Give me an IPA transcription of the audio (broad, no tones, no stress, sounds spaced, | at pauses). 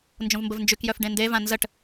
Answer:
n d͡ʒ õ v m b ə v n d͡ʒ y k j œ f ɖ ẽ n d e v ã n z ə ʈ